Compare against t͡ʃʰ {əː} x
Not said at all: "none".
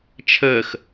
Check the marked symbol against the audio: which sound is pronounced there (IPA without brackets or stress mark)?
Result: əː